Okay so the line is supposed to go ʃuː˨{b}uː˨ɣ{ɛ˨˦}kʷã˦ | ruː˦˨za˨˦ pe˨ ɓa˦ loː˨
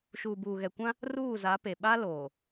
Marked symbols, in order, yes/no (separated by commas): yes, no